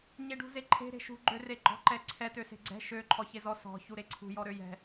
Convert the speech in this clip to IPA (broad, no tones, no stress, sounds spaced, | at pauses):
ɲ e ɖ ṳ z e ǃʰ e̤ ɾ e̤ ʃ ṳ ɡ͡ǃ ø r e ɡ͡ǃ ɔ̤ ǃ ɛ ǀʰ ɛ t ø s e̤ ɡ͡ǀ ɛ̤ ʃ ø ǃʰ ɔ ç e z ɔ s ɔ̤ ç u ɾ e ǀʰ ṳ j ɔ ɾ ø j ɛ̤